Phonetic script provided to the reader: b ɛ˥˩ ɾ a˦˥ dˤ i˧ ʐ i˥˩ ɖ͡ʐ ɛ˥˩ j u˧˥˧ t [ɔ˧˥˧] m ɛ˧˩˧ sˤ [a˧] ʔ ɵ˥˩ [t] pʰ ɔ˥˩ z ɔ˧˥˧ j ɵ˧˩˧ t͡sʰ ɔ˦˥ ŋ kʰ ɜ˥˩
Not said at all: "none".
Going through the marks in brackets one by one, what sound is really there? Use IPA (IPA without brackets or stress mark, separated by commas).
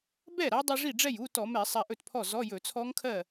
ɔ˧˩˧, a˧, t